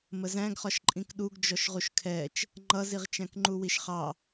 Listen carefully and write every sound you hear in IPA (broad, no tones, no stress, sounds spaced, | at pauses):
m ə z æ̃ ɡ χ ɒ ʃ ǃʼ ĩ k ɗ u ɡ d͡ʒ ɔ ʃ ʁ u ʃ kʰ ɛ t͡ʃ | ŋ͡ǃ ʌ z i ʁ t͡ʃ æ̃ k ŋ͡ǃ u w i ʃ χ ɑ